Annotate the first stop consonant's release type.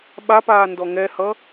implosive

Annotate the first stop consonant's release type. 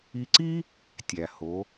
click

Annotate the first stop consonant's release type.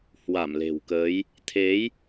plain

